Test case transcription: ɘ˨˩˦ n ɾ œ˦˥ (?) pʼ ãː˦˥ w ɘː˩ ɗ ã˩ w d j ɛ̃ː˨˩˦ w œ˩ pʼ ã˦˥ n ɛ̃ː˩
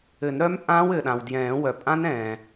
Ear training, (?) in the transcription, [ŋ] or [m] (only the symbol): m